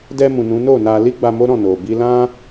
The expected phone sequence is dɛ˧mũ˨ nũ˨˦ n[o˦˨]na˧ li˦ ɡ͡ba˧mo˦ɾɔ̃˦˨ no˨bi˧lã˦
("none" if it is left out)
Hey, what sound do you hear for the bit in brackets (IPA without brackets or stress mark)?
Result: o˦˨